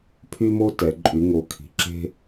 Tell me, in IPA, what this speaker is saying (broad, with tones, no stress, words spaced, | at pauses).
pʰy˥mo˥tɛ˩˧ ǃʼy˩˧ŋo˩˧ kʰi̤˩˧ǁe̤˥